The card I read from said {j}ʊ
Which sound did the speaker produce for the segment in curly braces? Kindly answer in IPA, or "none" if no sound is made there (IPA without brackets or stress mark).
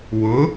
w